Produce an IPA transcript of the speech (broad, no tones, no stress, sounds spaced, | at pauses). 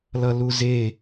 l ʌ l u z e